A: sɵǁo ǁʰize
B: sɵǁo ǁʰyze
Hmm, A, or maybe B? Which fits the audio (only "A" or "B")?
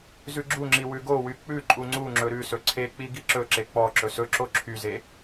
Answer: B